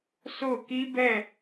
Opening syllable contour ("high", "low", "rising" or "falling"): falling